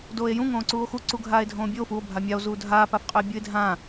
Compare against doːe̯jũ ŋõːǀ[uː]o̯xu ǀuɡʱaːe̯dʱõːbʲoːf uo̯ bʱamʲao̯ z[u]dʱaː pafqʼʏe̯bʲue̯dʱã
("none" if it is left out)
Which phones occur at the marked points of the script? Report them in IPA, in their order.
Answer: uː, uː

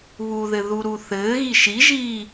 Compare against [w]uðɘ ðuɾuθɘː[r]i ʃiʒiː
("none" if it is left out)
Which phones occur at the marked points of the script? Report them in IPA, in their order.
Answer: β, ɣ

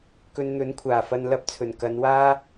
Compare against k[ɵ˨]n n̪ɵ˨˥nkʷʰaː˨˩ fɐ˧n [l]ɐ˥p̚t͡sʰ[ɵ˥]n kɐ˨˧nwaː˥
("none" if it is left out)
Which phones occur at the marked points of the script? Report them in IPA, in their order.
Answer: ɵ˧, l, ɵ˨˩

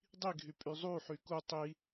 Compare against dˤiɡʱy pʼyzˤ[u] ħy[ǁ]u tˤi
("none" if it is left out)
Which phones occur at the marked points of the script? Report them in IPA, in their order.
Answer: u, k

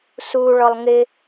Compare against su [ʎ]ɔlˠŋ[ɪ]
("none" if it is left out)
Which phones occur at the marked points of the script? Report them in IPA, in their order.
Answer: ɭ, ɪ

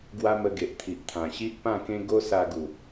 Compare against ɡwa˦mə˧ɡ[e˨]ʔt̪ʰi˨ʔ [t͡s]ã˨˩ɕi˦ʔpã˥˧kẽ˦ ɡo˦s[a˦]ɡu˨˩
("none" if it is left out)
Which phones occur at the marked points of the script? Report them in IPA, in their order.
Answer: e˨, t̪ʰ, a˧

